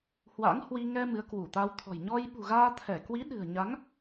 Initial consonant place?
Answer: glottal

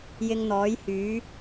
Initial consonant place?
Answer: palatal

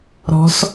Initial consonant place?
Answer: alveolar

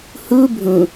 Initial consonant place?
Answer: glottal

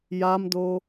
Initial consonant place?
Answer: palatal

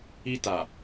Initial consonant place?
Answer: alveolar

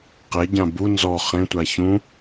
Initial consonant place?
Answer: uvular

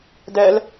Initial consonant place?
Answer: alveolar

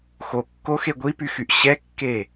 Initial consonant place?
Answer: velar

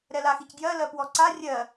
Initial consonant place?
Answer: alveolar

